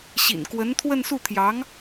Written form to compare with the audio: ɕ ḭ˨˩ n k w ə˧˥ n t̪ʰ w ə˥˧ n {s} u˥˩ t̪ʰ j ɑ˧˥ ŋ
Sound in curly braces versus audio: correct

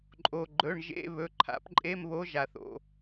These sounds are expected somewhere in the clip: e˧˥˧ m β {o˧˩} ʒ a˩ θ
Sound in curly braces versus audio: incorrect: o˧˥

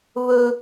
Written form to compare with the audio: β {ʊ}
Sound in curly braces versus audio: incorrect: ɵ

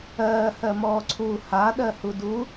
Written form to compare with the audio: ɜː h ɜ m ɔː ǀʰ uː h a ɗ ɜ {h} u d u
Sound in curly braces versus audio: correct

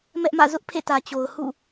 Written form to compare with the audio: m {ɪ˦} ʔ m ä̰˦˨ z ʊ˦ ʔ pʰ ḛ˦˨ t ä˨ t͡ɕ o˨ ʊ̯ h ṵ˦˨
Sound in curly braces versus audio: incorrect: ɛ˦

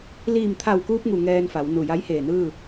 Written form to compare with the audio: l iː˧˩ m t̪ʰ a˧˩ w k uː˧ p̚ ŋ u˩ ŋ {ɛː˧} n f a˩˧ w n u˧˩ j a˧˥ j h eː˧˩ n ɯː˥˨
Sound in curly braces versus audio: correct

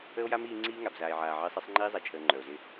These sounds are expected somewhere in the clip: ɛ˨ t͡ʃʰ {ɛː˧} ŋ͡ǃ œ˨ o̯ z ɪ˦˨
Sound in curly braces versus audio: incorrect: əː˧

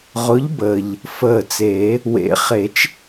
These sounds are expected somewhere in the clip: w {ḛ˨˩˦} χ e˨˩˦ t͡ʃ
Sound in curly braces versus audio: correct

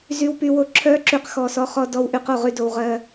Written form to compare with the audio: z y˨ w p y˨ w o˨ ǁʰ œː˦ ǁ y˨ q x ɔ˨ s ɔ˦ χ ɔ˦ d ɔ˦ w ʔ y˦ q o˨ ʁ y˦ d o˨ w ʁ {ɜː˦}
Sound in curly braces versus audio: correct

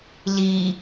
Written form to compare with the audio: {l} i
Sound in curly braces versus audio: correct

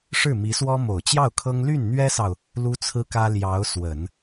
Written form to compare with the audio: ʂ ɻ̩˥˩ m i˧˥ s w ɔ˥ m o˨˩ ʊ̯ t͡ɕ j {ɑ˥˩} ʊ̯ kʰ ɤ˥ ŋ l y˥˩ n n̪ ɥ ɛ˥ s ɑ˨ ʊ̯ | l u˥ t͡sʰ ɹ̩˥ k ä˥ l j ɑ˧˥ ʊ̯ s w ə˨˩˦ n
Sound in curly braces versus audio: correct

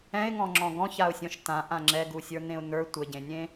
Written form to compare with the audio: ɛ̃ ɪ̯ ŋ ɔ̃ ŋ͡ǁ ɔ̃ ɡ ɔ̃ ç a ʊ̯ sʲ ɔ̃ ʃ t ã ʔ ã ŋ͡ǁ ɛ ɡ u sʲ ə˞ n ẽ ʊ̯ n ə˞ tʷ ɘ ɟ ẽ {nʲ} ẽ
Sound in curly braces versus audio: correct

